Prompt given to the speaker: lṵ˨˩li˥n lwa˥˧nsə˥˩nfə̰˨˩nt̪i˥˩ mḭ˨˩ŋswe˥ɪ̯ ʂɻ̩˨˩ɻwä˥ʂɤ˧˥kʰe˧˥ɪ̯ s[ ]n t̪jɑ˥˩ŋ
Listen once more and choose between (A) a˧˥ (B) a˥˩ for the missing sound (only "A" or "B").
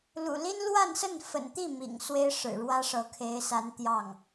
A